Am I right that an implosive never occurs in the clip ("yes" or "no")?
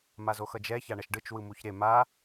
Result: yes